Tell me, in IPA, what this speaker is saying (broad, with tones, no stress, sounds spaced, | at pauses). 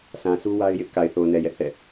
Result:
s ã˨ s u˦ w a˦ ɪ̯ j ɪ˦ ʔ k a˨ ɪ̯ θ o˨ ʊ̯ n ɛ˨ j ɛ˦ ʔ θ ɛ̰˦˨